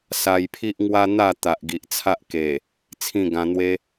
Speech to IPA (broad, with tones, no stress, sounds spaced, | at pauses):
s a˧ j pʰ i˦ ʔ ŋ w a˦ n̪ a˥˧ t̪ a˨ ʔ ɡ i˨ ʔ t͡sʰ a˦ ʔ k e˨˩ | t͡sʰ ĩ˥˧ ɡ ã˧ n̪ w e˦